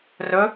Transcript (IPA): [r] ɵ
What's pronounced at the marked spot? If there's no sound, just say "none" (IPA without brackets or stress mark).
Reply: r